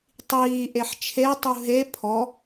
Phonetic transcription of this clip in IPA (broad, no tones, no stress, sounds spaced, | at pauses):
tˤ iː ʔ e ħ t͡ʃʰ e tˤ u ɦ e pʰ ɔ